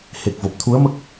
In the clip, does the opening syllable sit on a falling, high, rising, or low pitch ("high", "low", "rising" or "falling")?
low